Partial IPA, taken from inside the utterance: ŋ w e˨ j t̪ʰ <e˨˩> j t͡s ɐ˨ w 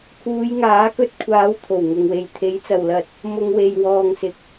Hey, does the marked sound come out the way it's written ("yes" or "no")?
no